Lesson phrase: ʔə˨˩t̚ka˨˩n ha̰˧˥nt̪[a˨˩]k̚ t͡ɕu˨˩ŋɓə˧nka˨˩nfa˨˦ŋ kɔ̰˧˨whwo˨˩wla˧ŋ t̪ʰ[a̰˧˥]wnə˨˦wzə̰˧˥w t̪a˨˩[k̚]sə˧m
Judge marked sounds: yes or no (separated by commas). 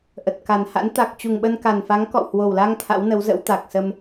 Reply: yes, yes, yes